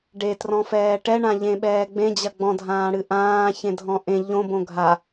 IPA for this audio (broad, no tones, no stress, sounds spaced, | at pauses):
ɖ e t r ɔ̃ f ɛː ʈ ɛ ɳ ã ʎ ẽ ɓ ɛː ɡ͡b ẽ d͡ʑ ɐ ɡ͡b ɔ̃ dʱ ãː ɽ ɨ ʔ ãː ç ẽ dʱ ɔ̃ ʔ ẽ ʎ õ b õ ɡʱ a